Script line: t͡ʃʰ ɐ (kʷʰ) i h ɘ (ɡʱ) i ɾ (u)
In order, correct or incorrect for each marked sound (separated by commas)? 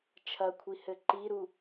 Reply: correct, incorrect, correct